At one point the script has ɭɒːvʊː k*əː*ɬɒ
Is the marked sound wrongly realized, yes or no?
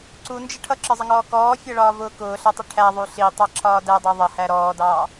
yes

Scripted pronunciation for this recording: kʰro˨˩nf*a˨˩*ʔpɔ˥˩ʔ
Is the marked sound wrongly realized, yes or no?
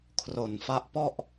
yes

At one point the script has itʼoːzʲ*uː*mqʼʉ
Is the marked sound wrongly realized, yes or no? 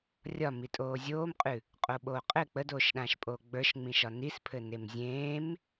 yes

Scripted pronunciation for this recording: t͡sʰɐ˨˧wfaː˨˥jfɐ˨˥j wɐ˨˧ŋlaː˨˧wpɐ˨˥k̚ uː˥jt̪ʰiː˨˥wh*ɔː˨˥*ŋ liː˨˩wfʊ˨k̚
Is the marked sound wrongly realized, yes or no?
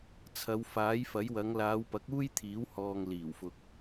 yes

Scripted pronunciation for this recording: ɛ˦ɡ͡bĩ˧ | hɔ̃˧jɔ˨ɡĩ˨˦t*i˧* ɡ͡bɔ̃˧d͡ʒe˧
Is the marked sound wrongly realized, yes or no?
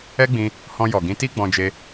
yes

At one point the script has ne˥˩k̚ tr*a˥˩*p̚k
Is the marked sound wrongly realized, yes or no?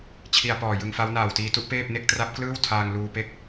yes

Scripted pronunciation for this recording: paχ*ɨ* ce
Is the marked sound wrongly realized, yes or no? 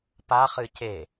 no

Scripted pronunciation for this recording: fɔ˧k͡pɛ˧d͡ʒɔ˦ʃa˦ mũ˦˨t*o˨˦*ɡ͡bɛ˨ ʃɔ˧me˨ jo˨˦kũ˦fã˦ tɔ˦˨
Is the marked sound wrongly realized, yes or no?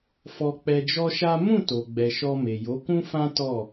yes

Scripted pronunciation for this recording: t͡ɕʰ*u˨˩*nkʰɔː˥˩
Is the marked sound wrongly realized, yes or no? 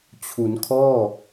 yes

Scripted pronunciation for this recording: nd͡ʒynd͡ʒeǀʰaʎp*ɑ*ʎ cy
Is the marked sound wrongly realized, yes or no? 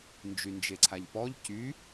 yes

